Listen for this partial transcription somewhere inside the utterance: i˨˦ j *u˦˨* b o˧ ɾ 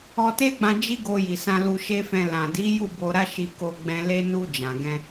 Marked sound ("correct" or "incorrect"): correct